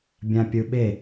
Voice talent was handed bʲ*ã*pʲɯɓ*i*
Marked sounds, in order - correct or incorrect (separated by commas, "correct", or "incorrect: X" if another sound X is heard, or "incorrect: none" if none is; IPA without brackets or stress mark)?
correct, incorrect: e